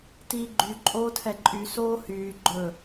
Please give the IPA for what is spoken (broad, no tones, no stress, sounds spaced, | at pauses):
t iː ɡ͡ǃ y ǃʼ oː tʰ ɛ ǃʼ y s oː h yː ɡ͡ǃ ɵ